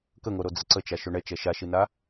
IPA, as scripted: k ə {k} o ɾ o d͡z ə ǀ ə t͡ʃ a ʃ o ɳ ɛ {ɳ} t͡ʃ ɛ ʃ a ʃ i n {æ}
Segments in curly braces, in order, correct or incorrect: incorrect, incorrect, incorrect

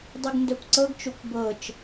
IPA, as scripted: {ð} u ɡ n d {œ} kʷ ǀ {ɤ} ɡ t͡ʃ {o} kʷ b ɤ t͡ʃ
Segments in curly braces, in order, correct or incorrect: incorrect, correct, correct, correct

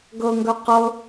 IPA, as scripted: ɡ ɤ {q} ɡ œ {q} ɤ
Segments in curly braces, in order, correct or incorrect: incorrect, correct

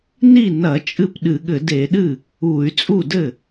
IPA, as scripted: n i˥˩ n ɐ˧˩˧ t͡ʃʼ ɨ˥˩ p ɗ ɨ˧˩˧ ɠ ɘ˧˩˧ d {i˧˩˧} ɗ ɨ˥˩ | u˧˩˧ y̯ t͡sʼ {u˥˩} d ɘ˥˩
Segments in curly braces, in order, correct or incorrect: incorrect, correct

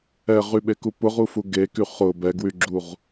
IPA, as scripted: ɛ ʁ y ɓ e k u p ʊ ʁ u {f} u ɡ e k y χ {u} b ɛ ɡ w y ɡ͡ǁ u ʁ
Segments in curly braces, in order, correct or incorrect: correct, incorrect

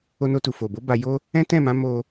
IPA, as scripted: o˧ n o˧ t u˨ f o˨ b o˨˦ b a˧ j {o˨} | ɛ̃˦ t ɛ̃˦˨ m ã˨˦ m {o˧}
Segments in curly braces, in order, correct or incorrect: incorrect, correct

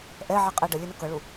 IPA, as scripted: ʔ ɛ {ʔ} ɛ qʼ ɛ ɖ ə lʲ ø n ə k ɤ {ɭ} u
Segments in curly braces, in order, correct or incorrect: incorrect, correct

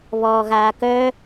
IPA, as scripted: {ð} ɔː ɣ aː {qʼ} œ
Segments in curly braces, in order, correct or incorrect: incorrect, incorrect

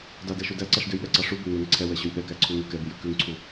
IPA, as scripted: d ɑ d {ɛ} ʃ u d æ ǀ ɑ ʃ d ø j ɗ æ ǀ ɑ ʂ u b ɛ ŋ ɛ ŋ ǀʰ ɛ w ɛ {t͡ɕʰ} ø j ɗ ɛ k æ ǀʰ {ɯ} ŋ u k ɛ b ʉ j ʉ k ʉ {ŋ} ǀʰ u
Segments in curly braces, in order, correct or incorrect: incorrect, incorrect, incorrect, correct

